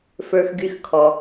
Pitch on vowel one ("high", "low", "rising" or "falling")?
high